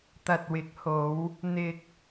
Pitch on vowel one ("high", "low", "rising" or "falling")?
low